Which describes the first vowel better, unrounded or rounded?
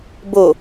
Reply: rounded